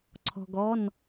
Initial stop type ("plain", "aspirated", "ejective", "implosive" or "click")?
click